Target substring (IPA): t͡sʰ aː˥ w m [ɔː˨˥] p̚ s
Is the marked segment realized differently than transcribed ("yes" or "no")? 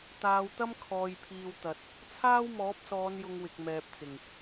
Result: no